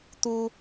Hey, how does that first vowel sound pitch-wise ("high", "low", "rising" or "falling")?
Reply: high